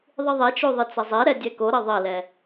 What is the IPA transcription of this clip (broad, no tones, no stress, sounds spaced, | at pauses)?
ðˤ ɨ ðˤ ɛ t͡ʃ o ðˤ ɨ t͡s ɐ zˤ ɛ ɾ ɛ dʲ ɛ k o ɾ ɐ ðˤ ɐ l ɛ